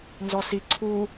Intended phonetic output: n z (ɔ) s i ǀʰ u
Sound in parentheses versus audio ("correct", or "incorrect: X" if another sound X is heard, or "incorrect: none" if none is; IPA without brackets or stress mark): correct